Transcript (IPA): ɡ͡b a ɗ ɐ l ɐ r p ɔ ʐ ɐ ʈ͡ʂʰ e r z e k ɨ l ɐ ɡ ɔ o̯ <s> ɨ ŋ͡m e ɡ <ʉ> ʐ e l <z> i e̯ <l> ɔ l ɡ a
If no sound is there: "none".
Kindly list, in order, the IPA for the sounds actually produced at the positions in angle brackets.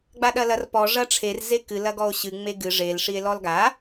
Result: ɕ, ɨ, ʂ, l

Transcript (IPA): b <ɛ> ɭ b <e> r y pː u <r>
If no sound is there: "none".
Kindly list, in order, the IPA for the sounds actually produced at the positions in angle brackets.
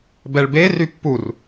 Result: ɛ, e, r

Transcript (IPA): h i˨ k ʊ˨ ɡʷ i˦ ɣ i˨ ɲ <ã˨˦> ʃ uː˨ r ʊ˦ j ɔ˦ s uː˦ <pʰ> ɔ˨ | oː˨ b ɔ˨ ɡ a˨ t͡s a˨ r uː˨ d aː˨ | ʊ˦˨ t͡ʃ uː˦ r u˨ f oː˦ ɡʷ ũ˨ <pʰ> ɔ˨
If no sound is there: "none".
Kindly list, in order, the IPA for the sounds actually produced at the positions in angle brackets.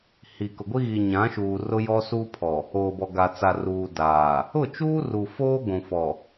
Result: ã˨˦, pʰ, f

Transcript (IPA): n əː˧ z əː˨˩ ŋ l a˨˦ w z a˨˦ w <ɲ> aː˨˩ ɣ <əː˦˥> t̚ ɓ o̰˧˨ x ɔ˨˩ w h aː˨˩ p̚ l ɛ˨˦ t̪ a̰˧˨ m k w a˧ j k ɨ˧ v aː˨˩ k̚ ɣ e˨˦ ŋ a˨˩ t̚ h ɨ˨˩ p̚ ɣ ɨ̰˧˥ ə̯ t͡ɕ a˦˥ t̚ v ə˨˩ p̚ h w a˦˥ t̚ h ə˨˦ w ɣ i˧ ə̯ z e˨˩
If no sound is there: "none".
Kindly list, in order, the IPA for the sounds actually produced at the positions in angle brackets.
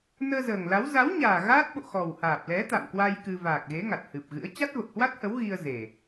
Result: ɲ, aː˦˥

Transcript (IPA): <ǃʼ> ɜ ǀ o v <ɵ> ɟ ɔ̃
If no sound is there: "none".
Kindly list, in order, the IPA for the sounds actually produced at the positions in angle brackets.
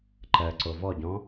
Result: ǃ, ɔ

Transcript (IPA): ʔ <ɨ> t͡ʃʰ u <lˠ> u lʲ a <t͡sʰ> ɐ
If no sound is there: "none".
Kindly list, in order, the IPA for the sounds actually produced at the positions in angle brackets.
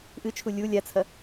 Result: ɨ, lʲ, t͡sʰ

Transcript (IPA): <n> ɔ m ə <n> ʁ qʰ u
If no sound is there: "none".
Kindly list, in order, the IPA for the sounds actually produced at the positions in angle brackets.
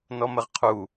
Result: n, none

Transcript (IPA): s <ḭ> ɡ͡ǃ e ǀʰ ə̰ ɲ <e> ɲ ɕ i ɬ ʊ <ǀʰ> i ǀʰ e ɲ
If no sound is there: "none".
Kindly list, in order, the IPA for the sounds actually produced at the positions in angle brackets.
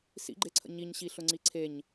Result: ḭ, i, ŋ͡ǀ

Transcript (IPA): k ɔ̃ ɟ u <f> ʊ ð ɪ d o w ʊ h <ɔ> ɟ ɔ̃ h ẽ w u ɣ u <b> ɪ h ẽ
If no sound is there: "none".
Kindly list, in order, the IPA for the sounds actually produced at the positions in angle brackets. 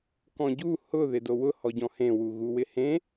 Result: h, ɔ, w

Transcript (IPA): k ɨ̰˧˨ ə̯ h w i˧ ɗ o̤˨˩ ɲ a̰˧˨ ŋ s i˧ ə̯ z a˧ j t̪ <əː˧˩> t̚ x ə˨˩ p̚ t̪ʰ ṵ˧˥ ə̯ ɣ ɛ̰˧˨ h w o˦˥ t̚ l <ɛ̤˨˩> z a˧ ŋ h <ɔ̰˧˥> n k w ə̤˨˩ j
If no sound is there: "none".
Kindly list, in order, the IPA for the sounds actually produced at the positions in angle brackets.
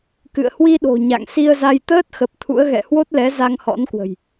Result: əː˦˥, ɛ˨˦, ɔ̰˧˥

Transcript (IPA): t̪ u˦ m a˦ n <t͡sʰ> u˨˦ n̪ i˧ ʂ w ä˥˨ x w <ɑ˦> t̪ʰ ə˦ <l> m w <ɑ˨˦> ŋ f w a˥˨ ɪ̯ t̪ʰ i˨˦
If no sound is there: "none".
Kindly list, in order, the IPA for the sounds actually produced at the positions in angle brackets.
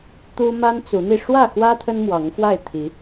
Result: t͡s, ä˦, n, ɑ˨˦

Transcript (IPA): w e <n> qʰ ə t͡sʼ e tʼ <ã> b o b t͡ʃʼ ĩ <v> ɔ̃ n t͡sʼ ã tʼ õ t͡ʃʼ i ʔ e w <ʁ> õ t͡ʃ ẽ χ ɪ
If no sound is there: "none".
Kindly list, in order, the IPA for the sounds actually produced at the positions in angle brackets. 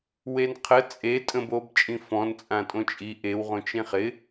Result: n, ə̃, f, ʁ

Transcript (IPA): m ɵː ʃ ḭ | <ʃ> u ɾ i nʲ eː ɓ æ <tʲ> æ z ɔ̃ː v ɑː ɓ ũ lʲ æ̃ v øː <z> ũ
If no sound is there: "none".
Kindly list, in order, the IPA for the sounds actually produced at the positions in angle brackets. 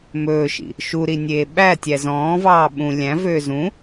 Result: ʃ, tʲ, z

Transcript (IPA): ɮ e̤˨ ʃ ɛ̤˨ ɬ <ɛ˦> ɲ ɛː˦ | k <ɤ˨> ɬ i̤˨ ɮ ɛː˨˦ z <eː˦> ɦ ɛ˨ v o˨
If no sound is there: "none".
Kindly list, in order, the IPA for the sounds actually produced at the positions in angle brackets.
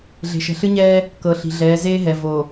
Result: ɨ˦, ɤ˨, eː˦

